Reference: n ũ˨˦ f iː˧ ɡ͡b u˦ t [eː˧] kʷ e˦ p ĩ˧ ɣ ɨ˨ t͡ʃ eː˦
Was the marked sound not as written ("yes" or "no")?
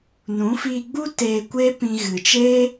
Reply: no